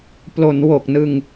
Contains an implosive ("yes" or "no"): no